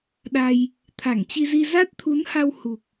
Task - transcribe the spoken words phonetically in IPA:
ɗ a˧ j | t̪ʰ a˧˩ ŋ t͡ɕ i˧ z i˧ z a˦˥ t̚ t̪ʰ u˨˦ n h a˧ w h u˨˩ k̚

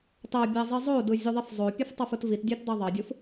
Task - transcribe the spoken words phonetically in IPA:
t ɑ bʲ æ zˤ i zˤ o d ɯ zʲ u ðˤ i f zˤ o pʲ ɯ f tˤ o f ɯ t v i t dʲ ɑ t d ɑ ðˤ ɑ dʲ ɯ f

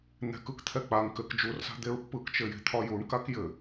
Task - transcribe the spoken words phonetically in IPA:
n̪ ɛ̤ k ɯ k t̪ʰ ɛ k͡p a ŋ k ɘ k d͡ʒ u r s a̤ d̪ e ɹ pː ɯ k t͡ʃ ɘ j e̤ t̪ʰ ɒ j u ɳ k a k j ɘ

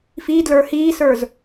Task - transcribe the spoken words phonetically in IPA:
f i d l ə˞ h iː s ə˞ z

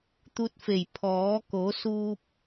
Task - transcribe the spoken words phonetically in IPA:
t̪ u˧˥ t̚ f e˧˩ j pʰ ɔː˩˧ k o˩˧ s uː˧ p̚

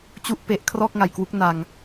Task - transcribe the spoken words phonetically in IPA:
t͡ɕ u˥˩ ʔ p e˦˥ ʔ kʰ r ɔː˥˩ k̚ ŋ a˨˩ j k w u˦˥ k̚ n a˧ ŋ

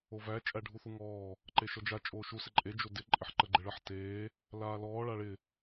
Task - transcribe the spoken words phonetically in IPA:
o v æ t͡ʃʼ æ ɖʱ u θ u ŋ ɔː | ǃ e ʃ ɔ d͡ʒ a t͡ʃʼ oː ʃ u s ɪ ǃʼ e d͡ʒ o d ɪ ǃʼ ɪ ħ ǃ ə ɡ͡ǃ ɪ ɭ ə ħ t eː | l aː l ɔː ɭ a ɭ ɪ

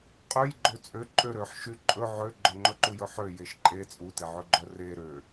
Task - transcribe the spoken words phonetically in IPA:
qʼ ø j ɡ͡ǃ ø t͡sʼ ø ǃʼ ø ɾ ø ħ ʃ y ǃʼ ɵ ʕ ø ɡ͡ǃ œ ŋ͡ǃ ɵ ǃ u j ɵ ħ ø j e ʃ ǃʼ e t͡sʼ u t e ʕ ɵ ɡ͡ǃ œ r e ɾ ø

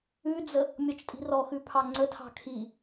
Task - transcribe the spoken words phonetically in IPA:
ʉ d͡z ə | mʲ ɔ t͡ʃ tʼ i̤ r ɔ x ʉ pʰ ɑ ŋ͡ǀ ə tʰ ɑ̤ kʰ i

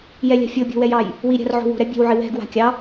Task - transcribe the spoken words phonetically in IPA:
j ɛ lʲ a̤ fʲ o bʲ o̤ w ɛ j ɑ j | w i ɾʲ a̤ r ʕ o̤ w o̤ ɾ ɛ bʲ ɛ̤ w ʕ ɪ w ɛ̤ ɡ w a̤ kʲ ɑ

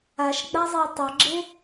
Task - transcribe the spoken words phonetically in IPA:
a ʃ ɡ͡b a zˤ e w tˤ ʌ ɡ͡ǁ e

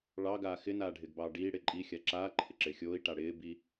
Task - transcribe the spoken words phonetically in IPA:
ɭ ɑ ɡ aː x ɪ n aː ɖʱ ɪː ɡ b ɑː ɖ iː ɽ ɪː ǃʼ i xʲ a ǁ aː ǃʰ ɪ ǁ ɪː xʲ oː i̯ ʈ a ɽ ɪː b i

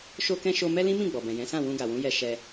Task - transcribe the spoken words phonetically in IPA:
ʃ o˧ k ɛ̃˧ ʃ o˧ m ɛ˦ l ĩ˦ m ĩ˦˨ ɡ͡b ɔ˨ b ɛ̃˨ j ɛ̃˨˦ s ã˦˨ w ũ˧ ɡ a˨ w ũ˨˦ j ɛ˧ ʃ ɛ˧

